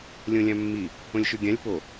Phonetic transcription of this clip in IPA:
lʲ õ lʲ ã mː i | õ lʲ ʃ ʉ ɡʲ ã lʲ p o

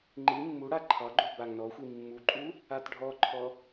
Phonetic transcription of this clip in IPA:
ŋ͡ǃ i mː u ɽ a ǃʰ ɑ ɡ͡ǃ u b a ŋ n ɔ xʷ i mː u ǃʼ u | a t ɖʱ ɔ ǃʰ ɔ

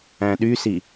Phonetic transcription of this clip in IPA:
æ̃ ɗ y s i

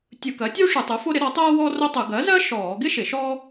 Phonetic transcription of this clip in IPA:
tʲ ɯ˧˩˧ k ɜ˩˥ tʲ uː˥ ʂ ɯ˧˩˧ tˤ ɯ˩˥ f o˥ ɾ ɪ˩˥ ɾ ɔ˩˥ tˤ ɜː˥ w ɔː˥ r o˥ tˤ ɯ˧˩˧ ɡ ɜ˩˥ z ɜ˥ ʃ ɔː˧˩˧ ɡ ɪ˥ ʃ ɪ˧˩˧ ʃ ɔː˥

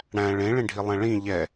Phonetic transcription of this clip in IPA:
ɽ æ̃ ɭ ẽ ɭ ẽ ɖʱ i lˠ ɛ̃ ɭ ĩ ʎ ɛ

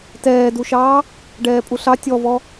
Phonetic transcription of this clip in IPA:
t ɛː d u ʃ ɑː | ɖ ɛː pʼ u ɬ ɑ tʲ ɔ v ɔ

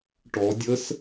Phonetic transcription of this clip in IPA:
ʈ ɔ dʲ ə s

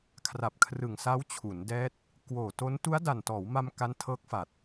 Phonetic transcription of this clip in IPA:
kʰ r a˨˩ p̚ kʰ r ɯ˨˩ ŋ s a˦˥ w t͡ɕʰ u˩˦ n d ɛː˦˥ t̚ | k w oː˨˩ t o˦˥ n t u˦˥ a̯ d a˨˩ n t ɔː˩˦ w m a˧ m k a˦˥ n tʰ ɤː˦˥ k̚ f a˨˩ t̚

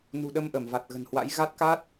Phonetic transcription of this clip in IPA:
n ṳ˨˩ ɗ ə˧ m ʔ ə˧˩ m v a˨˩ t̚ ɣ ə̤˨˩ n h w a̰˧˥ j ɣ a˦˥ t̚ k a˦˥ t̚

